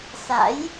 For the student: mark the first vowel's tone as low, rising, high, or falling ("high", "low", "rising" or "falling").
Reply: rising